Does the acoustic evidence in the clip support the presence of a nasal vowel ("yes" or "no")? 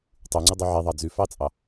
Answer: no